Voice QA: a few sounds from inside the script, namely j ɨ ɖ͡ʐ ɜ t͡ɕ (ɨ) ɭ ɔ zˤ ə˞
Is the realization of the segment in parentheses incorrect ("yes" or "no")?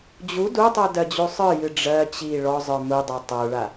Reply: yes